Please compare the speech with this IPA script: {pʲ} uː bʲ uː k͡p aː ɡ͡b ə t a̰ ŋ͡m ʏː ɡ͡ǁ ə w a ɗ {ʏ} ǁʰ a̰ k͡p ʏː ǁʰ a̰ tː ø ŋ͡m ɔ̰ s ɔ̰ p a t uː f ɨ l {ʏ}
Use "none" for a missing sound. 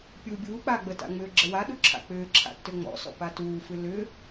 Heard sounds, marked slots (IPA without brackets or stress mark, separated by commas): pʲ, u, ʏ